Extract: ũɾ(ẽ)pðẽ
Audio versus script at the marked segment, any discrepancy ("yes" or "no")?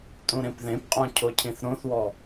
no